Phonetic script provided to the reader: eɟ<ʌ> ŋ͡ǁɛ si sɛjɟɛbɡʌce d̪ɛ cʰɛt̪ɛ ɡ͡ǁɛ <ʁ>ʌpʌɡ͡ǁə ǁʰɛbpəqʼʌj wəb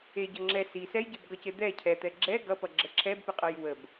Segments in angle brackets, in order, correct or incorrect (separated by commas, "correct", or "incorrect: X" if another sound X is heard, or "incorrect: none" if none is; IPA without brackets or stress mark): correct, incorrect: ɡ